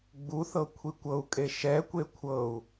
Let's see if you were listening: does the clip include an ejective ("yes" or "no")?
yes